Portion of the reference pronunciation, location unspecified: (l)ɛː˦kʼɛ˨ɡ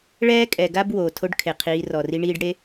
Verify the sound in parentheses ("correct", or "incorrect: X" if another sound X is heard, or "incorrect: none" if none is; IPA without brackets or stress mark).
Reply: incorrect: ɭ